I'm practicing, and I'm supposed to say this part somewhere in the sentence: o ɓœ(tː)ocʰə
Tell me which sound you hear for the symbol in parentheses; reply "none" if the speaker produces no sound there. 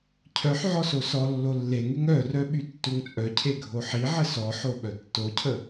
tː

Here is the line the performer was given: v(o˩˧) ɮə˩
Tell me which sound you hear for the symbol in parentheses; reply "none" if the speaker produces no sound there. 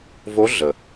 o˧˥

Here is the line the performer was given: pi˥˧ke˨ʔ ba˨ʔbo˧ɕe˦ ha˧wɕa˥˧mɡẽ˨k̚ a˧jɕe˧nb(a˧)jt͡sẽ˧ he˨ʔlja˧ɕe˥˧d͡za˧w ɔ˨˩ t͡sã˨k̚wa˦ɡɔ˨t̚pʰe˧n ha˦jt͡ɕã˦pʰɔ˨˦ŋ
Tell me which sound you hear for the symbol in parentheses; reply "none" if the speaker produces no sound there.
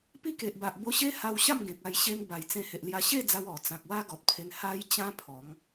a˨˩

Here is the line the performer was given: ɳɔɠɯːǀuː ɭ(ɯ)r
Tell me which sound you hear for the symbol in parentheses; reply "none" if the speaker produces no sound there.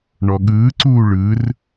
ɯ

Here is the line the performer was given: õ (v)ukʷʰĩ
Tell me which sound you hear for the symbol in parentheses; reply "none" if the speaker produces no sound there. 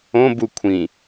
b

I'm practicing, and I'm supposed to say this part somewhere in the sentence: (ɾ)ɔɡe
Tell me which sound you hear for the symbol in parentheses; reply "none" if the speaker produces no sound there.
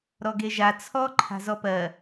ɾ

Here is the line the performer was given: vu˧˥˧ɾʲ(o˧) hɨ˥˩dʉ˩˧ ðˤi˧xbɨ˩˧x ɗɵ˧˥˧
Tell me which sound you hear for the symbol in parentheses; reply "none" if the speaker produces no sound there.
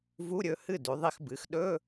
ɵ˧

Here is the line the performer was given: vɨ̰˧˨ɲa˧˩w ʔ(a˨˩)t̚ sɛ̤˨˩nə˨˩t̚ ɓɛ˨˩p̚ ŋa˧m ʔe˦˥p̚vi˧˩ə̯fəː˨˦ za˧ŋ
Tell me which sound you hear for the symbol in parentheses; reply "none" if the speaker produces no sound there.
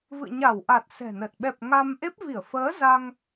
a˨˩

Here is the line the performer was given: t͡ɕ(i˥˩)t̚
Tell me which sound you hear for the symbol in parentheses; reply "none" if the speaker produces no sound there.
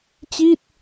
i˥˩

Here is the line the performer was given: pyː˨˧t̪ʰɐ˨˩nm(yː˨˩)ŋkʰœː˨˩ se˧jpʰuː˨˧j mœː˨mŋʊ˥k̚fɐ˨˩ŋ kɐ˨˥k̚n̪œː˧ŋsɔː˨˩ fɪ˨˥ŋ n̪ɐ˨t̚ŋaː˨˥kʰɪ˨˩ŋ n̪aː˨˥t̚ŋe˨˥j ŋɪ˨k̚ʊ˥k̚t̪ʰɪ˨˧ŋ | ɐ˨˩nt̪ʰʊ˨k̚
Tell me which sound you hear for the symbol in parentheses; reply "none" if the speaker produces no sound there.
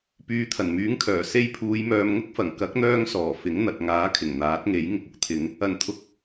yː˨˥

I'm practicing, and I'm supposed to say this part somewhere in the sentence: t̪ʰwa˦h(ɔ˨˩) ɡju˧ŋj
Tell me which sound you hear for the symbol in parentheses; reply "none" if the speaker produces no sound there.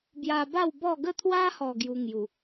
ɔ˨˩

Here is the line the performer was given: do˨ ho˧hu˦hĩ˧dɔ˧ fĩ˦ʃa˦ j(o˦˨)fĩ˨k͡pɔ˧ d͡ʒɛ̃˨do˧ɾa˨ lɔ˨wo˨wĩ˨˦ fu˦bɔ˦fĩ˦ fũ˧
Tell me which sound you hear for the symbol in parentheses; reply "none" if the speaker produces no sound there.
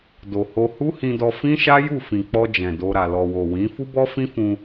u˦˨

